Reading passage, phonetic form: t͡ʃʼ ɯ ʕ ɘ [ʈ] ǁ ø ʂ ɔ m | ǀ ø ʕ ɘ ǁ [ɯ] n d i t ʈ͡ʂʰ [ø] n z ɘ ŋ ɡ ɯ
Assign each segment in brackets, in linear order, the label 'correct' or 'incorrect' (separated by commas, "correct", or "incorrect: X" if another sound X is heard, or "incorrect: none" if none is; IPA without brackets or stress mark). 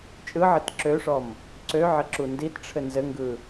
incorrect: t, incorrect: u, incorrect: ɘ